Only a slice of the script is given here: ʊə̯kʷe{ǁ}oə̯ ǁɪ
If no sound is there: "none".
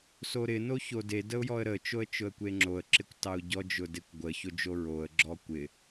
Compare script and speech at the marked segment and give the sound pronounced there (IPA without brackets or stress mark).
ŋ͡ǁ